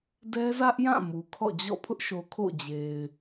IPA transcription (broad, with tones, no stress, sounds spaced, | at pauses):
d ɛ˦ z ä˦ ʔ j ã˦˨ m u˨ kʰ ɔ̰˦˨ d͡ʑ ɔ̰˦˨ pʰ ʊ˦ ʔ ʃ o˨ kʰ o̰˦˨ d͡ʑ e˨ ɪ̯